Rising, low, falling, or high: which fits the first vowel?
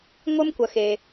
high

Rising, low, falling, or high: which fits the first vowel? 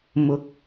rising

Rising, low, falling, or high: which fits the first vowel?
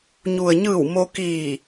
low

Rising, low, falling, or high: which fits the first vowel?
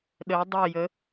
rising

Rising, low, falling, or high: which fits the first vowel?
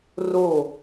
falling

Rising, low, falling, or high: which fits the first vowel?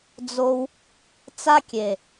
high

